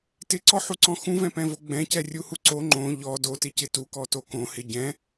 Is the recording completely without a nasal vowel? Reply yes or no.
no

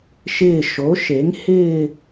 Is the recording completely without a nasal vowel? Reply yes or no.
yes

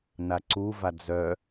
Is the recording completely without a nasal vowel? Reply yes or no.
yes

